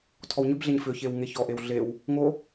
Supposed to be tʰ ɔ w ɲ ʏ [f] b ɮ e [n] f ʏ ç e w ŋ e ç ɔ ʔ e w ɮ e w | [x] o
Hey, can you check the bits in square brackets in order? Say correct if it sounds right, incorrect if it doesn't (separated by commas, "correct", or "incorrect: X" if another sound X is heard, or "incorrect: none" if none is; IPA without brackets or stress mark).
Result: incorrect: none, incorrect: ɲ, incorrect: ŋ